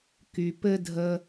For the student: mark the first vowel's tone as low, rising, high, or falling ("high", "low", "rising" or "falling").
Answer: low